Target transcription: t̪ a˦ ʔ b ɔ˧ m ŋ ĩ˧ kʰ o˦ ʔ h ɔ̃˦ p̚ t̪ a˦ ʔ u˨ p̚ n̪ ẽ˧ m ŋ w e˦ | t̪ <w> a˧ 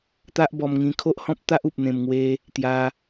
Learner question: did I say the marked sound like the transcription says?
no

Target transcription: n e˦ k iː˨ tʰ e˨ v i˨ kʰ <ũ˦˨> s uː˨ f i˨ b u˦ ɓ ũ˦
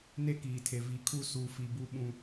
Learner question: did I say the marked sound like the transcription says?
no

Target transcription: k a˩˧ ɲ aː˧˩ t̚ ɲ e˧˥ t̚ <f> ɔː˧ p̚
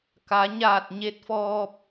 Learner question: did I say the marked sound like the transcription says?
yes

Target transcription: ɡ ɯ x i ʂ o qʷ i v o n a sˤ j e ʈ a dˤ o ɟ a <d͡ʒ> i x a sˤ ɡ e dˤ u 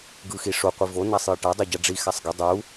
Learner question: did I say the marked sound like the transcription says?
no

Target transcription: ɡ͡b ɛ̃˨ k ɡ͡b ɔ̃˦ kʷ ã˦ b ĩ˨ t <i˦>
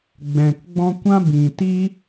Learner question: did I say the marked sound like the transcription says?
yes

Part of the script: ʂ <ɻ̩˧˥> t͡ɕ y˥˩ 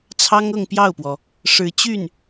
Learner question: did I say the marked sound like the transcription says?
yes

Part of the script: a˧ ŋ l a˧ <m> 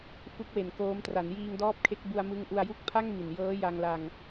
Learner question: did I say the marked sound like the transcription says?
no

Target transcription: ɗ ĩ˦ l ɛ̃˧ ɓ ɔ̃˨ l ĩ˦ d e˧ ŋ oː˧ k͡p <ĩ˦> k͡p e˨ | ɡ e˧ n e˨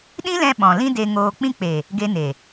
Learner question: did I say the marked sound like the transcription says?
yes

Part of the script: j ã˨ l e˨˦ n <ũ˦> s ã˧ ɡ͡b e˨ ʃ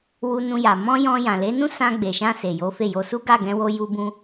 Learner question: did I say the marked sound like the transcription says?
yes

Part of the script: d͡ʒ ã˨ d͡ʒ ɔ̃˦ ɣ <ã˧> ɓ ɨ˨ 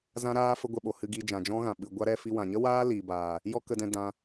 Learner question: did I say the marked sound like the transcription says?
no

